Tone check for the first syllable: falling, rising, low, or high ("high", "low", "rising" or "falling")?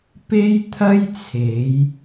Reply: high